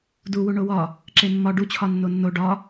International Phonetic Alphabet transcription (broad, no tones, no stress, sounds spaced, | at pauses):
d u w u ɳ o w ɒ | ǁ e mː ɒ ɖ u t͡ɕʰ ɒ nː o nː o ɖ ɒ